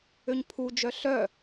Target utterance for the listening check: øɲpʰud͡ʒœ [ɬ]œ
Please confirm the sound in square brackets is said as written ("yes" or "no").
yes